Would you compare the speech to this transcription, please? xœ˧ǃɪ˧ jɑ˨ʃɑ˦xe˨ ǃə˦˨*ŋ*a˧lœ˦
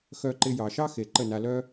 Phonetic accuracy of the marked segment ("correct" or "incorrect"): incorrect